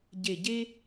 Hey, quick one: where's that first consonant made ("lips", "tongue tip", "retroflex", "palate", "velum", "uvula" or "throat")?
palate